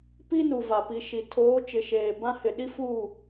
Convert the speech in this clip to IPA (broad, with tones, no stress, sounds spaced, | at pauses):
p i˦ n u˨ v a˨ p i˨ ʃ i˨ tʰ oː˨˦ t͡ʃ ɪ˨ ʃ eː˨ b ã˦ h ɪ˨ ɗ i˦ f u˦˨